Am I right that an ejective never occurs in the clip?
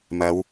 yes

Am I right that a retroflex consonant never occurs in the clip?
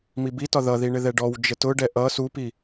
no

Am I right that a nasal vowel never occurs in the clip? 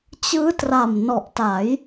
yes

